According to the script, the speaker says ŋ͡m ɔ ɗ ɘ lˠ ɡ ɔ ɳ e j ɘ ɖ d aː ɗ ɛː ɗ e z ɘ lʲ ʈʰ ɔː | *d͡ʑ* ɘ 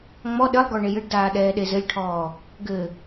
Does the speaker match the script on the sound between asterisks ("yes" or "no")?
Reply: no